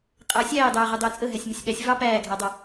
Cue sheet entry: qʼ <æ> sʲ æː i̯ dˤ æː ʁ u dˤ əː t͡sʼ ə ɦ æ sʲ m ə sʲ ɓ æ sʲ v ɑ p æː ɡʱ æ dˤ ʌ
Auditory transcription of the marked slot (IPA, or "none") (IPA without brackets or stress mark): æ